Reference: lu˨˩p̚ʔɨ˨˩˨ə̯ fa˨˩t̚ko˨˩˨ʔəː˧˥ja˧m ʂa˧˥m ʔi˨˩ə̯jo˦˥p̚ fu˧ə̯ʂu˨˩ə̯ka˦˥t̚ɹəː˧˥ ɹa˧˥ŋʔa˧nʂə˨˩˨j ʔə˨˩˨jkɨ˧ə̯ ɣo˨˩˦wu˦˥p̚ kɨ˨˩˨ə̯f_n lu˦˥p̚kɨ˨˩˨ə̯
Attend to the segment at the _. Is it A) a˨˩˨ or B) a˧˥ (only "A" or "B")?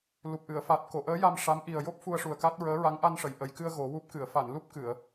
A